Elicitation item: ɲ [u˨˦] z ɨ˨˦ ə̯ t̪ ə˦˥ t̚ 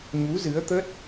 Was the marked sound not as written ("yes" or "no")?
no